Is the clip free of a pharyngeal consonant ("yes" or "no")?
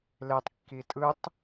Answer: yes